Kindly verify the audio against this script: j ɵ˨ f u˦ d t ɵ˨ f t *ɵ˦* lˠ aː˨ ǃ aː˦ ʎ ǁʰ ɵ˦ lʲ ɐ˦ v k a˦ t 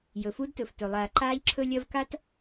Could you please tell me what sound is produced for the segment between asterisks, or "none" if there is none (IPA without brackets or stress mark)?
ɵ˨